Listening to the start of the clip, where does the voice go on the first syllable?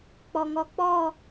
low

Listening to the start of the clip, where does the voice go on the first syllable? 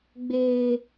high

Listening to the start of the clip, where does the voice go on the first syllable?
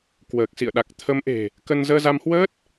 low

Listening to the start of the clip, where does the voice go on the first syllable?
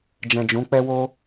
low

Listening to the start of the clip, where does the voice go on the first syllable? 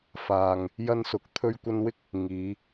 low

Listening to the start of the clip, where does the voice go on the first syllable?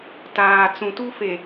low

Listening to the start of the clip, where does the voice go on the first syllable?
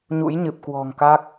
rising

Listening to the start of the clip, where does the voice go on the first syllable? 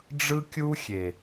high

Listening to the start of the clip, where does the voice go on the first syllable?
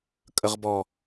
low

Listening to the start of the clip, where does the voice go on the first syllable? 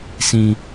high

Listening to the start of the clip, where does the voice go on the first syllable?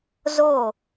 falling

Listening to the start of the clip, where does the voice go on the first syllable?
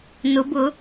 rising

